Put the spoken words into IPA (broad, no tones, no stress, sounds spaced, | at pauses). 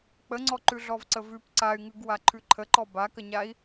k͡p ə ŋ͡ǀ ɔ ǃ ʉ ɮ ɔ v ǀ ə v ʉ p ǀ a y̯ ŋ ʉ ɡ w a ǃʰ ʉ ǃʰ ə ǃ ɔ b a k ə ɲ a i̯